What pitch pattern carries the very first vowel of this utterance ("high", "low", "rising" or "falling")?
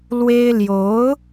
high